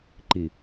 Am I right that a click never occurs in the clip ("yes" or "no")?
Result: no